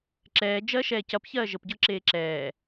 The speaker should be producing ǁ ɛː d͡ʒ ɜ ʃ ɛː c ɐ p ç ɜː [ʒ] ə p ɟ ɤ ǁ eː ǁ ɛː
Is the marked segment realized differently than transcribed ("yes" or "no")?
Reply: no